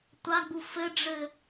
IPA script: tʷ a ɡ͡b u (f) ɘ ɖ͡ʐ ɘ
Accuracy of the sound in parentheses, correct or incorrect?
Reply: correct